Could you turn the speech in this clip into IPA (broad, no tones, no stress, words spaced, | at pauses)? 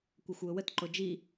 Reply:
kʷaxʷwʊwətǃo d͡ʒi